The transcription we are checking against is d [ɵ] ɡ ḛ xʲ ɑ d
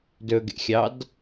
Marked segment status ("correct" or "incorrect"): correct